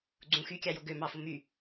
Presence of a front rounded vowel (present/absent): present